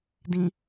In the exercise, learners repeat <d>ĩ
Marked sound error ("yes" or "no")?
no